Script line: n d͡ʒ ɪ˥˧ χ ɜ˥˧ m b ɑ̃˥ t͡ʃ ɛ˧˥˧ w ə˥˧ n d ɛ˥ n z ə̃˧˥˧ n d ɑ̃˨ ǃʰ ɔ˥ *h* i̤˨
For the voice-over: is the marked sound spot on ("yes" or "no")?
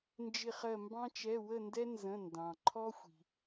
no